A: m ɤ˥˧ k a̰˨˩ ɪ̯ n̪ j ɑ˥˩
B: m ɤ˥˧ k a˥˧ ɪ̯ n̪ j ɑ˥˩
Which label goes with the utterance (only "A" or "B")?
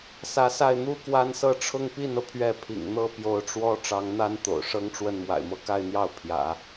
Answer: B